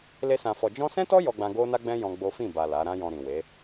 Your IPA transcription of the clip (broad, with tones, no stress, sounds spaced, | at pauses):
l e˦ s ã˧ f ɔ˧ d͡ʒ ɔ̃˦ s ɛ̃˦ t ɔ˦ j ɔ˦ ɡ͡b ã˦ ɡ o˦ n a˦ ɡ͡b ɛ̃˦ j ɔ̃˦ ɡ͡b o˦ f ĩ˦˨ b a˨ l a˨˦ ɾ ã˦ j ɔ̃˧ ɾ ĩ˨ w e˨˦